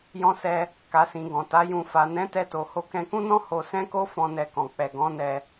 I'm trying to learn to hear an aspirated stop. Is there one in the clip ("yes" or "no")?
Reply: no